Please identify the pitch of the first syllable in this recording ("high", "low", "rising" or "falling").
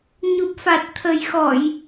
low